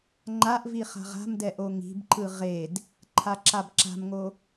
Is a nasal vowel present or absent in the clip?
absent